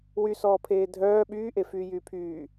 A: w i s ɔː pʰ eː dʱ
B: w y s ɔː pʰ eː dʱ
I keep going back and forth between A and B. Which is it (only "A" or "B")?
B